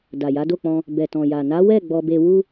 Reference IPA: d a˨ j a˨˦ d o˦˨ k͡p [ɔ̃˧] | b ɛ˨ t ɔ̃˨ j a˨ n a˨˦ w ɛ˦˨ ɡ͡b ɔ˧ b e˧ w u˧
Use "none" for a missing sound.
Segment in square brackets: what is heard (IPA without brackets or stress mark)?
ɔ̃˧